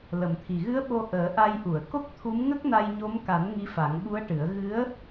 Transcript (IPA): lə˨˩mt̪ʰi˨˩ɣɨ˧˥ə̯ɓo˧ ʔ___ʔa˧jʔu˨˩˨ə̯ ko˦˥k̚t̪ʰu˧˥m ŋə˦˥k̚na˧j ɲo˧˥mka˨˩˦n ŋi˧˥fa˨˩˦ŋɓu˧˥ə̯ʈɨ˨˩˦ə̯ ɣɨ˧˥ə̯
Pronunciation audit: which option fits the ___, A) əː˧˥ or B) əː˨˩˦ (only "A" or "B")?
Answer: B